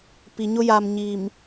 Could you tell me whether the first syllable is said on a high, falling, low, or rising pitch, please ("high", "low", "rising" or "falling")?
low